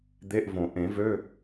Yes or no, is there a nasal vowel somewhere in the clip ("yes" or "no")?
yes